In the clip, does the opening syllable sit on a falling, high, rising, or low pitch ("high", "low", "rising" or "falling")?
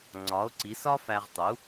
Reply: rising